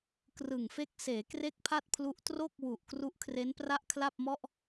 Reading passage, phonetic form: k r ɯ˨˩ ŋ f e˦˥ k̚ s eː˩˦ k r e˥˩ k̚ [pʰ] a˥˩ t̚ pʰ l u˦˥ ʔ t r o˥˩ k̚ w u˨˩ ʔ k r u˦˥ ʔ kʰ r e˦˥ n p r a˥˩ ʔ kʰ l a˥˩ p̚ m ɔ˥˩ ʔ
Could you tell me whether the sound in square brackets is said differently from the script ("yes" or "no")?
no